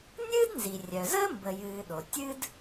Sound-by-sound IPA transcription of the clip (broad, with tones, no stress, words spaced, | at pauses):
nʲɨː˥dnzi˩rʲœ˩zəː˥ mbə˨jɨː˨ɗo˩ tʲɨ˥d